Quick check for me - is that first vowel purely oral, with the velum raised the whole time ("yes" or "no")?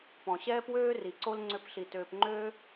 no